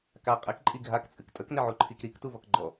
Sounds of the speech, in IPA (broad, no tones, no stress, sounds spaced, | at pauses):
k a qʼ ɪ k ǃʼ i ɡʱ a k t͡sʼ ɨ k tʼ ə k n ɪ ʕ u ǃʰ i k ɾ i k t u v ɔ k ɡ͡ǃ ɔ